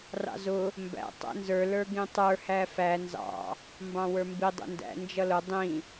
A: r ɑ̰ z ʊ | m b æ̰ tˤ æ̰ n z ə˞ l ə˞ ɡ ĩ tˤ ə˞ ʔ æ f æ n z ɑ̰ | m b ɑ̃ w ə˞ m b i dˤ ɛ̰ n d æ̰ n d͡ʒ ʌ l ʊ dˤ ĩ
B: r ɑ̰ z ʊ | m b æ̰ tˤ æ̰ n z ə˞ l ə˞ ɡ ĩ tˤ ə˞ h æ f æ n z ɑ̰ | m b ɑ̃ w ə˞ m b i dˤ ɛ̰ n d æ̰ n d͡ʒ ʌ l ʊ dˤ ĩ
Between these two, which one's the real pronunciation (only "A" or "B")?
B